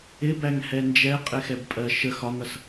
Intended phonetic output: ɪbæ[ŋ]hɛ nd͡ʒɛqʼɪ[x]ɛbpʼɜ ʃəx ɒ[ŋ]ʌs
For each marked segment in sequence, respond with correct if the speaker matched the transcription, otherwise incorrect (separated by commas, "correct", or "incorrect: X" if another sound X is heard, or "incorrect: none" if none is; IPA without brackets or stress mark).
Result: correct, correct, correct